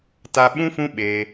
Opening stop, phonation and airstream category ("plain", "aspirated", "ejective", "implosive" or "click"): plain